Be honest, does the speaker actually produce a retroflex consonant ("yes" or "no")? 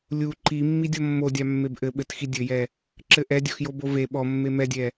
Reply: no